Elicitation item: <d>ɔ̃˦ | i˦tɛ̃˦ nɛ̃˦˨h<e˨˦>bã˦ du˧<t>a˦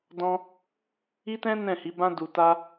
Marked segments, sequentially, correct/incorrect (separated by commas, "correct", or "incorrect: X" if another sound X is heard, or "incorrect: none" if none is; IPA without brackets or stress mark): correct, incorrect: i˨˦, correct